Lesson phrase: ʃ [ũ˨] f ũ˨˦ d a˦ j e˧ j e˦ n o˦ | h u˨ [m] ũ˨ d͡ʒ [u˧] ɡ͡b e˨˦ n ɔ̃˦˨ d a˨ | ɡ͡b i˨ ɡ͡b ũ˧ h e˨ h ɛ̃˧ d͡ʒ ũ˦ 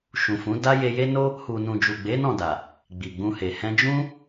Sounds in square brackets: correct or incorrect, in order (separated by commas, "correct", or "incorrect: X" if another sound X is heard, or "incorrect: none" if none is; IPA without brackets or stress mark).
correct, incorrect: n, incorrect: u˨